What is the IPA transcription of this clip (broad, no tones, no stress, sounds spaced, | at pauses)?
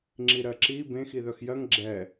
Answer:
ŋ͡ǁ i ɾ ɜ ǁ i b ẽ x i ð œ x j ɜ ŋ ɡ͡ǁ ɛ